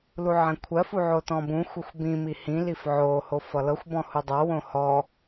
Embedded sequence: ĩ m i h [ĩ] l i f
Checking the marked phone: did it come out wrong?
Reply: no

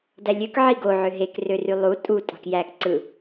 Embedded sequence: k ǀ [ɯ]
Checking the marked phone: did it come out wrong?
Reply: no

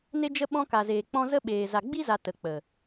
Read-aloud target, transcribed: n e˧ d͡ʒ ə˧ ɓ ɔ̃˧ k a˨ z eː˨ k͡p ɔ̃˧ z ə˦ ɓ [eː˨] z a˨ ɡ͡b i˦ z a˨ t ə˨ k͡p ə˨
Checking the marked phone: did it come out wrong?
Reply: no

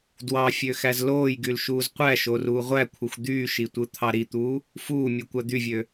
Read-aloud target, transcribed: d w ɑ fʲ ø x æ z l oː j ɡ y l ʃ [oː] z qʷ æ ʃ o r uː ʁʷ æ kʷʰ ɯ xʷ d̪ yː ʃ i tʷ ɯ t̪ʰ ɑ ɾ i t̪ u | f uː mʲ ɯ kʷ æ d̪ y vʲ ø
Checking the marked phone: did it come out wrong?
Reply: yes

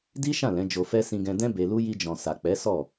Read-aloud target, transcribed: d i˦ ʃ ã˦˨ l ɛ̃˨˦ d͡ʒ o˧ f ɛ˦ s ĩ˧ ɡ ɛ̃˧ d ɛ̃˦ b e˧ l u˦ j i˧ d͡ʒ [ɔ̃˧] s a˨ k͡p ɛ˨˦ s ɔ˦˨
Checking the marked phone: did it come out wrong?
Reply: yes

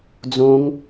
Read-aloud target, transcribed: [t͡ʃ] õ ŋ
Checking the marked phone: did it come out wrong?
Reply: yes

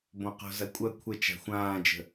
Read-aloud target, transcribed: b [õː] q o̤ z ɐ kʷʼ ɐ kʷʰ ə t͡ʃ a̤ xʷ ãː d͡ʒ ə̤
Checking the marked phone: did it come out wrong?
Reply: yes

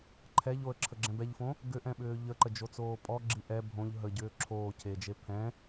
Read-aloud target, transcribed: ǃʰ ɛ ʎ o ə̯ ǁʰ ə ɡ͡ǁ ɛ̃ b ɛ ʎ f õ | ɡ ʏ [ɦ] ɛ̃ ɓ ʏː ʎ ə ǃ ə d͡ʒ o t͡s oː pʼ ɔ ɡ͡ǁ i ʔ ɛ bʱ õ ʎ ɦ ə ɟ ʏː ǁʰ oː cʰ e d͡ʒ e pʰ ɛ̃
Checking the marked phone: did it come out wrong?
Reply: yes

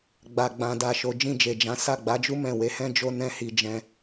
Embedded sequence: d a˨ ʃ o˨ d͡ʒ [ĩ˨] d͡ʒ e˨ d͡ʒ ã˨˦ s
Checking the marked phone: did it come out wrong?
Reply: yes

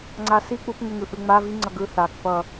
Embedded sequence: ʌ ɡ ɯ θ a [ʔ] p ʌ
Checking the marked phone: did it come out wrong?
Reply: yes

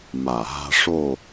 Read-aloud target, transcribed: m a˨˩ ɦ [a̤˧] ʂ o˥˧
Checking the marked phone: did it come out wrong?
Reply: no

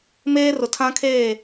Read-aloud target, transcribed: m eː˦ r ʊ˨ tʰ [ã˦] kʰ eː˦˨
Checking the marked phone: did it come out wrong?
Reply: no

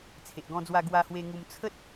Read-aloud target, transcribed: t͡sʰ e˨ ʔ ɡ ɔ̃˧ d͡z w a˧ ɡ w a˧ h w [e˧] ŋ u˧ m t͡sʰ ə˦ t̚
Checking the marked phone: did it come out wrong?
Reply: no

